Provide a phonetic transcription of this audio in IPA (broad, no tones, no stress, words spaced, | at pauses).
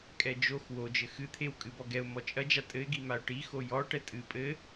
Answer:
kʼɛd͡ʒox wod͡ʒɘ xɨt̪ʰew kʼɨbɔɡɛʊ̯ mɔt͡ʃʼɐd͡ʒa tʼɘɪ̯ɡi maʊ̯ʈixo jɔ ʈɛtʼɨ pʼɘ